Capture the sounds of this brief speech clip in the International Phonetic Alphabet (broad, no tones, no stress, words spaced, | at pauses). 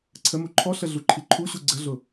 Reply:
ǀʰəmu ǃʰɔɬə ɮuǃʰiǃʰuɕu ɡ͡ǀəɮʊ